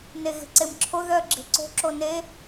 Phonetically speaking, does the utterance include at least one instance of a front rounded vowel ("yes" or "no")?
yes